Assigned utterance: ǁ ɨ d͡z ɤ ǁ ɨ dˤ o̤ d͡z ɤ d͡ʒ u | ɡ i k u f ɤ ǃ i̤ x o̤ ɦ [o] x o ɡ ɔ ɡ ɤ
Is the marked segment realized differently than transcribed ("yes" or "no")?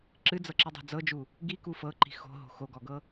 yes